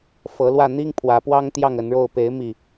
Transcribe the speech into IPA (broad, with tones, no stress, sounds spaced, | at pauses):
f ɤ˨˦ l w ä˥˨ n̪ i˦ ŋ pʰ w ä˨˦ p w ɑ˦ ŋ t̪ j ɑ˥˨ ŋ ə˨˦ n ɻ o˥˨ ʊ̯ p e˨˦ ɪ̯ m i˥˨